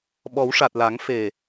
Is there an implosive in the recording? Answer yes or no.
yes